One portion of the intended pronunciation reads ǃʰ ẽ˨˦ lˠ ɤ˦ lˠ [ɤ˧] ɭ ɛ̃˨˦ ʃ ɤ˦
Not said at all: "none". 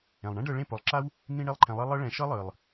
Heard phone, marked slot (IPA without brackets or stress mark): ɤ˦